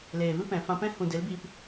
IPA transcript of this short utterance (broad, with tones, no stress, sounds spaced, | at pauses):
l eː˨ v ɨ˦ p ɛ̃˨ f ã˧ p ɛ̃˦ h ũ˨ d e˨˦ l b iː˧ p